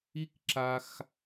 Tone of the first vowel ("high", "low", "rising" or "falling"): high